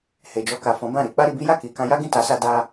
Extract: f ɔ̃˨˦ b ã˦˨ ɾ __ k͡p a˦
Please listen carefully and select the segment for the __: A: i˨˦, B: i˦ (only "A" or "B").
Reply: A